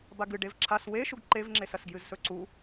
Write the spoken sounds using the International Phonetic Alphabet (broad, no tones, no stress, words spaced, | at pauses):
baɡɨ ɖevǁʰas weʃuɡ ǃevŋ͡ǁesɐsɡjɨz sɵǀu